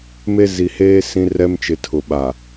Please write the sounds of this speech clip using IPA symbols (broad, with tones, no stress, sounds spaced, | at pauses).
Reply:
m e˦ z i˨ h eː˦ s ĩ˦ r ɛ˦ m t͡ʃ ɪ˨ tʰ ʊ˨ ɓ a˨